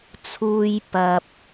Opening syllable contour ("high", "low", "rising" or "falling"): low